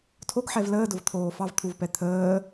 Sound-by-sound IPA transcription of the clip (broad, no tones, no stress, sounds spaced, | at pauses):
tʰ o ɡ ħ ɛ v l əː d ʊ v t̪ʰ oː f ɑ v t̪ʰ u v p ɛ t̪ʰ əː